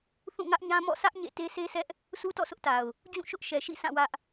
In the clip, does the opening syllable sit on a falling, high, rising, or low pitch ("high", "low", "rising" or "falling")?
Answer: falling